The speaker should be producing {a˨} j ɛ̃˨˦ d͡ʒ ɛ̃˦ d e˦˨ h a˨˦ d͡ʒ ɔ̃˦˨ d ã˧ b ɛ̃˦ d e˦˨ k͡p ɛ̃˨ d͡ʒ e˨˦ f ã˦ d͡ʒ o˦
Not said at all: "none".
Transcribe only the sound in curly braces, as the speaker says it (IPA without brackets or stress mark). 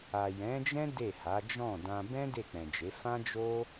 a˨